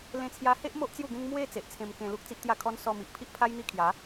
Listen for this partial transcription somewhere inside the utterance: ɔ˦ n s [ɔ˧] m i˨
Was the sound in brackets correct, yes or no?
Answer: yes